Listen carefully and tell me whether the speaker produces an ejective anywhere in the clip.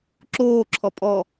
yes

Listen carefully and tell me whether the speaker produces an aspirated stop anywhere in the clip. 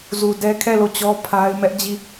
yes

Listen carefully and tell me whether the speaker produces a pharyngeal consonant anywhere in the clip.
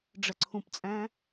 no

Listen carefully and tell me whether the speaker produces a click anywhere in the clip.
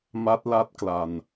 no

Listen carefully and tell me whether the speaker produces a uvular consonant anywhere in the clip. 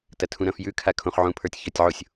yes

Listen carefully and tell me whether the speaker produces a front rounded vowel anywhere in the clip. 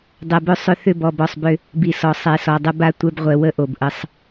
yes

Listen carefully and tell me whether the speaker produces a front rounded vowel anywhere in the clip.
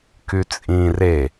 yes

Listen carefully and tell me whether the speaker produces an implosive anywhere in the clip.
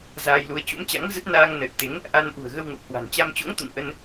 no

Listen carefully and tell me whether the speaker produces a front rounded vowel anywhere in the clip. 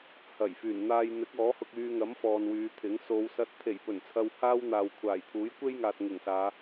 yes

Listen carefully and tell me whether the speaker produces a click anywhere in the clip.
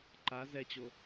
yes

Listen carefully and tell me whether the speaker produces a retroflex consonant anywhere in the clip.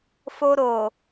no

